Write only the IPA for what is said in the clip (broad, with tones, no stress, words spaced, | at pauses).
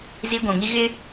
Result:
zi˦ɡʷũ˨ŋi˦ ɣɪ˦